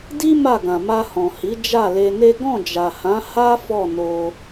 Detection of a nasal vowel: present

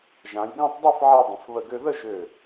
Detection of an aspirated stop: absent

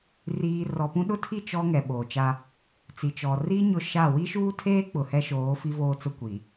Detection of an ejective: absent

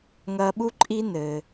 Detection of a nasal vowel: absent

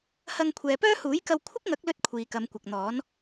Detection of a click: absent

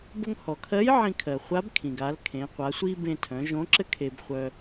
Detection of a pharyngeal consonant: present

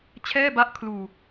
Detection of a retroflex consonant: absent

